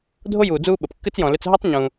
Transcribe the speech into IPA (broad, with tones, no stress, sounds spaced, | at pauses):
dʱ o˥ j uː˨ d͡z uː˦ ɓ ə˩ p kː ɨ˥ t͡s j ɔ̃˨ l ʏ˦ t͡s ɦ ʌ˥ tˤ ɲ ũ˨